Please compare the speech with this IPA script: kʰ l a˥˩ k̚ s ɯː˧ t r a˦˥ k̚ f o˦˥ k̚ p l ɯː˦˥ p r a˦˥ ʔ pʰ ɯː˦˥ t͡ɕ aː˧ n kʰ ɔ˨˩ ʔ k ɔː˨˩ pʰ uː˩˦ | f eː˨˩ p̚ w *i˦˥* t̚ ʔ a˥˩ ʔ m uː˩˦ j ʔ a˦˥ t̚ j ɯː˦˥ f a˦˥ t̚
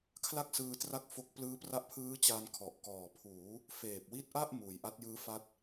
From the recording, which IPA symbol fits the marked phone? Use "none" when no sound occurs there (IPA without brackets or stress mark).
i˦˥